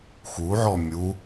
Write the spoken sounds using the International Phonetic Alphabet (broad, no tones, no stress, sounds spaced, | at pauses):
x u ʕ ɔ mʲ u